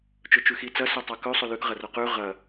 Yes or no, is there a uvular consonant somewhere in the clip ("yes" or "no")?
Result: yes